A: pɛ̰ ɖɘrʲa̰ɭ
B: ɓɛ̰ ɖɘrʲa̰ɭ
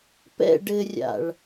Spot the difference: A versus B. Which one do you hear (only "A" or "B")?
A